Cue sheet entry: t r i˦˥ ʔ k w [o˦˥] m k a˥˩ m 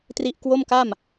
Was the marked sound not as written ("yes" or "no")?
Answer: yes